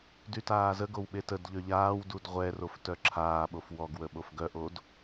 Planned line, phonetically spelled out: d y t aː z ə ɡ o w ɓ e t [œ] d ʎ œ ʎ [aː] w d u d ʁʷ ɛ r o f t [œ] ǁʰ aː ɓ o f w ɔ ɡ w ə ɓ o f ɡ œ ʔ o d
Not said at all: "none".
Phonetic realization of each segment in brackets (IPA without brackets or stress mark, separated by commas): ə, aː, œ